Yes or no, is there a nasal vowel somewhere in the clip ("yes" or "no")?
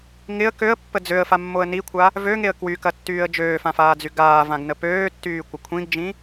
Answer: yes